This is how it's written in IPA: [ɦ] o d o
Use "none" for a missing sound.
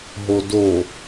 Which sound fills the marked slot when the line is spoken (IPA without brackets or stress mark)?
ɦ